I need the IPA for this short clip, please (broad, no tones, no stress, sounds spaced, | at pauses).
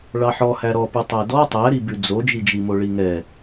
ɭ ɑ ħ ɔ h æ ɾ ɔ p ʉ tˤ æ d ɔ tˤ æ ɾ i b ʉ d͡z o d͡ʒ i d͡ʒ i m o ɭ i ŋ ɛ